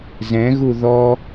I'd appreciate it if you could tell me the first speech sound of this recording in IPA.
z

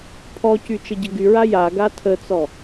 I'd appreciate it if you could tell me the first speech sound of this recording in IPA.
pʰ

